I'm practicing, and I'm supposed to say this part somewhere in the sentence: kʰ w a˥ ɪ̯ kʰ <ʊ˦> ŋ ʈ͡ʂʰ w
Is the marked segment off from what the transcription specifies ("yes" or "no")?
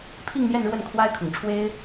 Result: yes